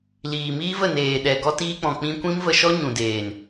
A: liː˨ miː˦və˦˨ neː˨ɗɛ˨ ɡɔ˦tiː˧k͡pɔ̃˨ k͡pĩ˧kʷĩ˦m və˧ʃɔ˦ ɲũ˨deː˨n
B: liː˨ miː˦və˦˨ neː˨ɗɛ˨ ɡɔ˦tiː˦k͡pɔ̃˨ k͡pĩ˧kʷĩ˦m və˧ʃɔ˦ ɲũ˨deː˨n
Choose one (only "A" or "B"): B